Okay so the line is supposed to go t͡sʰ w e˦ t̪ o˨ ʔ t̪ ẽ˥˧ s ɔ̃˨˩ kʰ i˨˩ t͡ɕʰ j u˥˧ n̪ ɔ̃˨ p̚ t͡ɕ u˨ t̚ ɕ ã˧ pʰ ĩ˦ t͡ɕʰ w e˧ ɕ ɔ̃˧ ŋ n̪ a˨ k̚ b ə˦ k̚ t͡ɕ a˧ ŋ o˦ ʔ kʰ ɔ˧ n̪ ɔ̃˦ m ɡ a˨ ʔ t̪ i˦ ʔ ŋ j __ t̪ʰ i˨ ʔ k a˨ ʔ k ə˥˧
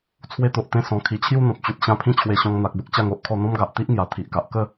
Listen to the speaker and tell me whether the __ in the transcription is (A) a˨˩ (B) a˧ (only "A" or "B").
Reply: A